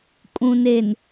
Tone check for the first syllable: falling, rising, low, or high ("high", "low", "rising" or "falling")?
low